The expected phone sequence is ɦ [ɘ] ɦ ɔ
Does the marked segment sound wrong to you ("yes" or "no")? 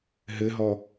no